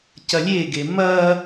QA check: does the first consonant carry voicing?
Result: no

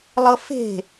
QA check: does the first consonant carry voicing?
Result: yes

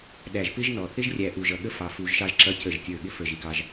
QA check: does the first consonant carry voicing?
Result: yes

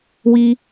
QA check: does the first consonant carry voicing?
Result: yes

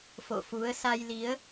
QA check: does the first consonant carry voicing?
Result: no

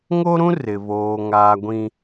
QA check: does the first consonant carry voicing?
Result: yes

